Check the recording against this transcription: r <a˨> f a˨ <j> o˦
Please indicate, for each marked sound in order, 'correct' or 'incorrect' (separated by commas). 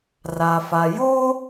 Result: correct, correct